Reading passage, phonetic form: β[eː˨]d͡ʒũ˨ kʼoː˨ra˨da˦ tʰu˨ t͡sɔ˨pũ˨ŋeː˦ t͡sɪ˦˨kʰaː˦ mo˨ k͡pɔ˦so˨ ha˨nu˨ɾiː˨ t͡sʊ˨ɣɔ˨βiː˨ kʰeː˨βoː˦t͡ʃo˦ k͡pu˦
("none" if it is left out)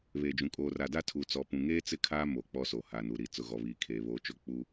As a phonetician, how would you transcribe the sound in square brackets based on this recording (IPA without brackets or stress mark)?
eː˨